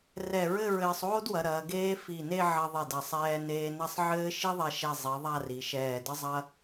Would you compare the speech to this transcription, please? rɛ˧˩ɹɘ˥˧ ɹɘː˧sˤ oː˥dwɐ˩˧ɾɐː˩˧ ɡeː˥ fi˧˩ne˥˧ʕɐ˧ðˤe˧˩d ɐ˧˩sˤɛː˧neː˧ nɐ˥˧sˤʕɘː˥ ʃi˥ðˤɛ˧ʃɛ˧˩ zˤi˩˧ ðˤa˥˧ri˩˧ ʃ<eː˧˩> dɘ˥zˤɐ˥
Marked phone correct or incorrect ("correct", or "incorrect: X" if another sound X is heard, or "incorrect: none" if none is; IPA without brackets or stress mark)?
incorrect: ɛː˧˩